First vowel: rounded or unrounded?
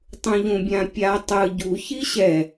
rounded